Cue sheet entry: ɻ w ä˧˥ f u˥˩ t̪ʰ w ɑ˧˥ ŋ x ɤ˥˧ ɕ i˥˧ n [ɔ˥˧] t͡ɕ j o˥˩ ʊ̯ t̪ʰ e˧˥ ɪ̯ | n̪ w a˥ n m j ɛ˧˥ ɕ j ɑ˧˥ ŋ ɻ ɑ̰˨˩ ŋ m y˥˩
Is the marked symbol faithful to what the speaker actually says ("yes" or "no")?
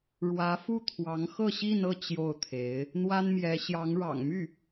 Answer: no